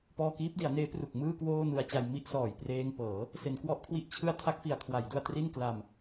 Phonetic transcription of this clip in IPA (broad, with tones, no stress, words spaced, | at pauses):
pɔː˧kiː˦˥p̚di˩˦a̯neː˦˥ pru˨˩k̚mɯː˥˩ kwoː˥˩nu˧a̯t͡ɕa˧j mi˥˩ʔsɔː˨˩j preː˧ŋpɤː˩˦ | se˩˦nkwɔ˦˥ʔ kʰwi˥˩ʔt͡ɕʰɯ˥˩a̯ tʰa˦˥k̚fi˩˦a̯kʰwa˩˦jdu˧a̯ tri˥˩nkla˧m